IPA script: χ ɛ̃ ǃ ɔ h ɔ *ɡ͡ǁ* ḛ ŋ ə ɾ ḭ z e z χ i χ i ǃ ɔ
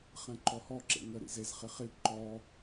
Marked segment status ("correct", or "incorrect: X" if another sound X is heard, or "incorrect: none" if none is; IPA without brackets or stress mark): incorrect: ǁ